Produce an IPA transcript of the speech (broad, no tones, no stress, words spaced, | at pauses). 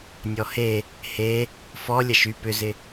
nʲɔhe | he | fɔ lʲɐʃy pʏzɪ